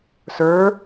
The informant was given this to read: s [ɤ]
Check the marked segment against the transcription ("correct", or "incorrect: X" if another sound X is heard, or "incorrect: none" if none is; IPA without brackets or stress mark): incorrect: ə˞